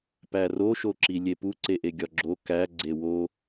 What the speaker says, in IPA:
pæro ʃoǁilʲepu ǀeʔeɡʲɒɡ͡ǁo kæ ɡ͡ǀewo

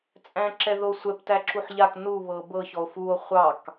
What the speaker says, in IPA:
t͡sʼæ̃ǁɛðosʷɛp tæǁuħʎak nu βɤbɤ çɔo̯fuo̯ χʷɑk

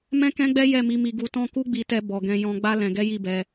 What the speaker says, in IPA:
mɛ̃˦kɛ̃˦ɡ͡bɛ˦ jɛ˦˨mi˨˦mi˧ ɡu˧tɔ̃˦ ku˦ɡ͡bi˧tɛ˧ bɔ˨ɡɛ̃˧jɔ̃˧ɡ͡ba˦ lɛ̃˧ɡɛ˦ji˦˨bɛ˧

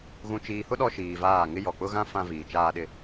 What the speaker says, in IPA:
ɣũ˨t͡ʃiː˨hʊ˦ ɗɔ˦ʃiː˨vaː˦˨ ŋɪ˦jɔ˨ k͡pʊ˦ɣã˦ fã˦viː˨t͡ʃaː˦ɗɪ˦

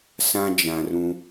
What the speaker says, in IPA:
sã˦ d͡ʒã˨rũ˦

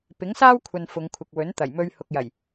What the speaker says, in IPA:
pɪ˨˥ŋsaː˥wkʷʰɐ˨n fʊ˨˧ŋkʷʰɪ˨k̚wɵ˨˥n t̪ɐ˨˩jmɵ˧ɥ hʊ˨k̚jɐ˨˩j

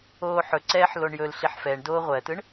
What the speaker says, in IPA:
oːħɵǀɛːħ loɳjɵlɬiħ fɛɳdoː ʁʷɜtɯɳ

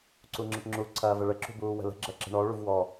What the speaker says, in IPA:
ǀuŋ͡ǁəʈŋ͡ǁu ǀʰɐːvəɭə ǁṳbuːwə̤lə̤ ɡ͡ǁɐǁə̤ɳɔ ɭuvwɔ

